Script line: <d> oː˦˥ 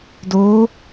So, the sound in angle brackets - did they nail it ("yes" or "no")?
yes